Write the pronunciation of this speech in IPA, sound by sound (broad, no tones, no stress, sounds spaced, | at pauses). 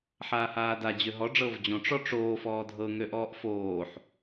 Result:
ħ aː h aː d a d͡ʑ ø ɦ ɔ ɖ͡ʐ ɤ v d͡ʑ õ ʈ͡ʂ ɔ ʈ͡ʂ oː f ɔː dʱ ɤ ŋ ø ʔ ɔː ʔ f oː ħ